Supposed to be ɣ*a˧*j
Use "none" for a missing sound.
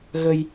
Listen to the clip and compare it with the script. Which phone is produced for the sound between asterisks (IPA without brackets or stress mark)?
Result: ə˧